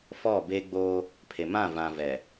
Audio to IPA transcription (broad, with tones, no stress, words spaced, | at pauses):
fɔ˦˨be˦ ɡ͡bo˦ | pʰe˨mã˦˨vã˨ vɛ˨